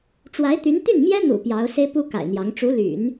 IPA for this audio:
ʈ͡ʂwa˧˥ɪ̯t̪y˧˥n t̪y˥˩nmjɛ˥n̪ṵ˨˩ pjɑ˧˥ʊ̯ se˥ɪ̯pu˥ ka̰˨˩ɪ̯n̪jɑ˧˥ŋ ʈ͡ʂu˧˥ly̰˨˩˦n

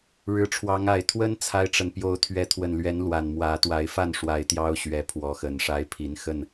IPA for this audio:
ɻɻ̩˨˦ʈ͡ʂʰwɑ˨˦ŋa˨˩ɪ̯ t̪ʰwə˦n t͡sʰa˦ɪ̯ʈ͡ʂə˨n pjo˨˦ʊ̯t̪ʰɥɛ˨˦t̪ʰwə˨˩nlɥɛ˨˦n lwa˨˩n mwä˨˦ t̪wa˨˦ɪ̯fa˥˨nʂwa˨˦ɪ̯ t̪jɑ˦ʊ̯ ɕɥɛ˨˦ pʰwɔ˨˦xə˨˩nʂa˦ɪ̯ pʰi˨˦nxə˥˨n

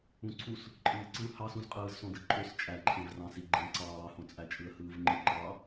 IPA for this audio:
ũǀʰus | ǃʼɯːǀɯ hɑsũzqʼɯːz sõdɯǃʼøs t͡ʃʼæǃʰẽv rɑ̃siɡ͡ǃẽ ǀɑːhõt͡sʼæ t͡ʃʼɯə̯hɯːvŋ͡ǃɯ ǃɑ

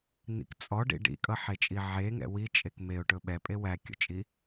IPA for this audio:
n̪ḭk t͡sʼɔɖḭ ɖḭkʼʌħet͡ʃʼi ʕeŋɛ̰ wit͡ʃʼek meʊ̯ʈɵ ɓɛpʼe wækʲɔ̰t͡ʃʼi

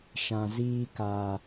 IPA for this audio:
ʃã˨ziː˧kaː˨

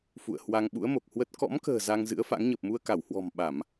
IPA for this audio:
fṵ˧˨ə̯hwa˧ŋ ɓṵ˧˥ə̯mo˨˩k̚hwə˦˥t̚ kɔ̰˧˥mkə̤ː˨˩ za˧ŋzɨ̰˧˥ə̯fa̰˧˥ŋ ɲə˨˩p̚mu˧ə̯ka˧˩whwɔ̤˨˩m ɓa˧˩˨m

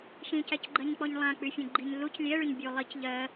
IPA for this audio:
ʃĩcæcɡ͡ǃɜɲk͡pɔɲ lˠãk͡pyfʲẽɡ͡ǃiɲ luc lʲɛɭyɲ bʲu lˠic ʎɜ

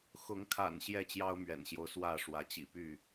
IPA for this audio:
xʊ˨˦ŋkʰa̰˨˩n ɕjɛ˥˨t͡ɕjɑ˦ʊ̯mɥɛ̰˨˩nɕjo˦ʊ̯ swä˥˨ ʂwä˨˦t͡ɕḭ˨˩py˥˨

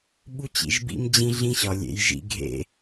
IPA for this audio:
ɓu˦t͡ɕḭ˨ʒbḭ˦md͡ʑĩ˦ ɮĩ˦ɕɒ˨lʲḛ˨˦jʒḭ˦ ɡʱḛ˦

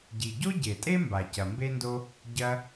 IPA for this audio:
ɟi˩ɟo˥ ɟe˩tʼe˥ mba˩cɐ˩mbe˥ndo˥ | ɟɐ˧

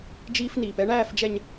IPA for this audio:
d͡ʒiː˦fniː˨pɛ˦ ɳæː˦˨fd͡ʒɛ˨ɲ

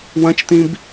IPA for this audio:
wɐ̃t͡ʃt̪ĩb

